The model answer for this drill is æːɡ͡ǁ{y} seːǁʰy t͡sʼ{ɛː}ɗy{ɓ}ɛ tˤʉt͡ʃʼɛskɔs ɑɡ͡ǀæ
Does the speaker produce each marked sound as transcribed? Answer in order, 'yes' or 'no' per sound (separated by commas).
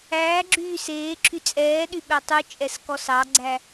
no, yes, yes